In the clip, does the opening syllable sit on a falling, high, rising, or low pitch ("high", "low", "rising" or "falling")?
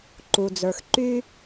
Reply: low